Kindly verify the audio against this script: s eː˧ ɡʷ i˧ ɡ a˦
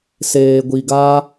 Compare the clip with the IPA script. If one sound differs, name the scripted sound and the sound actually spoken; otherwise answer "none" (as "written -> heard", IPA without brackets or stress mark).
none